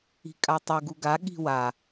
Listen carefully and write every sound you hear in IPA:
i̤ kʼ a tˤ ɯ ɡ u ɡ a ɠ i̤ w a

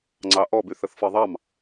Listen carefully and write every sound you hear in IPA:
ŋ͡ǀ ɑ ʔ ɔ b y θ ə θ f ɤ ðˤ ɑ m

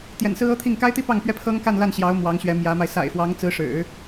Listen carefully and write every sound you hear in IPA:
t̪ j ɛ̰˨˩ n s ɹ̩˥ ɤ˥ t̪ʰ i˥˩ ŋ k a˥ ɪ̯ t̪ i˥ p ɑ˥˩ ŋ p ɥ ɛ˥ pʰ ɤ˥ ŋ k a˥˧ n l a˥˩ n ɕ j ɑ˧˥ ʊ̯ m w ɑ˧˥ ŋ ɕ ɥ ɛ˧˥ m j ä˧˥ m a˧ ɪ̯ s a̰˨˩ ɪ̯ f w ɑ˧˥ ŋ t͡s ɹ̩˧˥ ʂ ɻ̩˨˩˦

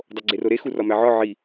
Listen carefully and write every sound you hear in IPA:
dˤ o ɡ͡ǀ e r o ɾ e x u r ɒ m æ ʕ ɒ ʕ i

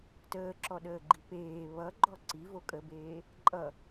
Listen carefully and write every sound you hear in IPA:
t əː ǁ ɔ ɗ əː ɡ͡ǃ i p eː β ʌ ɡ͡ǃ ɔ ǀ i v o kʼ ə b eː | ǃʼ ʌ

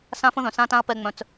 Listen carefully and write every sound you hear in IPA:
s ã˦ f ə̃˦ ð œ̃˨ s ã˦ t ã˦ ɐ̯ p ɛ˧ ŋ͡m œ̃˧ t͡s

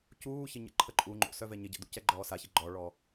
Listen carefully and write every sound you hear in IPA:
c uː ç ɪ ɲ ə̰ ǃʰ ə ǃʼ u ŋ͡ǃ o̰ s œ v ɛ ɲ ɪ ɟ ə̰ d ṵ c ɛ ɡ͡ǃ ɔː s a ç ɪ ɡ͡ǃ ɔ ɭ ɔ

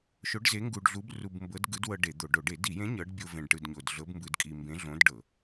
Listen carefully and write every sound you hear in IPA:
ʃ o˧˥ ɖ z e˧˥ ŋ ɡ u˧ ɖ ɮ u˧˥ b r u˧ b m b ɤ˧˥ d ɡ ɯ˧˥ d w ɤ˧ ɖ e˧˩˧ d̪ o˧˩˧ ɖ o˧˩˧ ɖ e˧˩˧ d i˧˩˧ j ẽ˧˥ ɲ ɤ˧˥ ɖ bʲ o˧ v ẽ˧ ɖ ʈ ɯ˧ d ɲ o˧ d ɮ ɤ˧˥ b m b ɯ˧ d kʼ i˧ m b ẽ˧˥ ɮ õ˧˥ d ɖ ɤ˧˩˧

